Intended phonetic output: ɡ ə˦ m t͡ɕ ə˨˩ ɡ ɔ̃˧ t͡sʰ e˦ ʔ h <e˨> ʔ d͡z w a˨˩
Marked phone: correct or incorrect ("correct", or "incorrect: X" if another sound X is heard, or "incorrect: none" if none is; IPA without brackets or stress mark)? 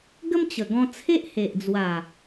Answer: correct